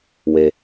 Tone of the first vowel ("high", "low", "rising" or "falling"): high